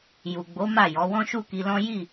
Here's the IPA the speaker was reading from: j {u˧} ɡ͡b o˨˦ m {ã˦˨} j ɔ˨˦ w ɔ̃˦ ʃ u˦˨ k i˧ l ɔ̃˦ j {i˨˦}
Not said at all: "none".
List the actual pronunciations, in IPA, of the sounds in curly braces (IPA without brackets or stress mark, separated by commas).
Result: u˨, a˦˨, i˦˨